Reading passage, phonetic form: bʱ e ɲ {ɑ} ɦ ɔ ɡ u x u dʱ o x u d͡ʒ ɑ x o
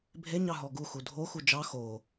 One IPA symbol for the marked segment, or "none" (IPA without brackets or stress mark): ɑ